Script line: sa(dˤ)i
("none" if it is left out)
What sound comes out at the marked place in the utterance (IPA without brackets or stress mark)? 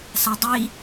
dˤ